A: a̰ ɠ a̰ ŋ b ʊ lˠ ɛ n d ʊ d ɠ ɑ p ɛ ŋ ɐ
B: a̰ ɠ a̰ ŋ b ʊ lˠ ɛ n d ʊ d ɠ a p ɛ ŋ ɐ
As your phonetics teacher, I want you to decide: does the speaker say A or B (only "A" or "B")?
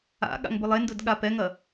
B